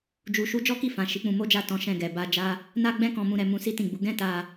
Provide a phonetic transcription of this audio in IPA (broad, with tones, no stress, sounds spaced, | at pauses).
d͡ʒ u˧ ʃ u˦ d͡ʒ ɔ˦ k i˦˨ f ã˨ ʃ i˨˦ k͡p ũ˧ m o˦ d͡ʒ a˦˨ t ɔ̃˨˦ ʃ ɛ̃˧ ɡ ɛ˨ b a˧ d͡ʒ a˦ | n a˦ ɡ͡b ɛ̃˦ k ɔ̃˧ m ũ˧ ɾ ɛ˧ m ũ˧ s i˦ t ĩ˦˨ ɡ͡b u˨˦ ɡ ɛ̃˦ t a˧